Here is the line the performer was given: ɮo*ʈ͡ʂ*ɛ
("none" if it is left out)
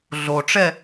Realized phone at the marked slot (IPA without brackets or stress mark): ʈ͡ʂ